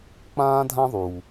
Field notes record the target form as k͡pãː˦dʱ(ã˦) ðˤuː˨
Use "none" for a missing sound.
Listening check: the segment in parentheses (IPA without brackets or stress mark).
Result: ã˦